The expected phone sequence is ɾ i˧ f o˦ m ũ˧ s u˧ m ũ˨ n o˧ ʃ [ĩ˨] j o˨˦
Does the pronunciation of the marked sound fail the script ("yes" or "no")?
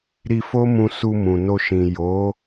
no